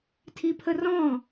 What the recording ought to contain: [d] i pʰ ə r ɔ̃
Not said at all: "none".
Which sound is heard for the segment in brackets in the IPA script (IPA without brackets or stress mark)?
tʰ